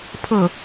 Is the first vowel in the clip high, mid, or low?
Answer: mid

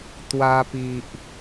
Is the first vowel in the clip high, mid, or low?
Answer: low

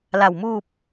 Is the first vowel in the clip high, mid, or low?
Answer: low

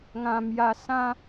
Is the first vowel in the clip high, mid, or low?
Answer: low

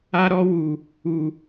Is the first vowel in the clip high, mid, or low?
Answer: low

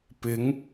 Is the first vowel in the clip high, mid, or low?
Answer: high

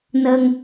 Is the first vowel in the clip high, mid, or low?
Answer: mid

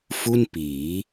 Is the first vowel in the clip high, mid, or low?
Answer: high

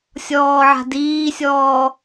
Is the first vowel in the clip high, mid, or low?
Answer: mid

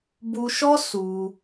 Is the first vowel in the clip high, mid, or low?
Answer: high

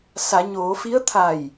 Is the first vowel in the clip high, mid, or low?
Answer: low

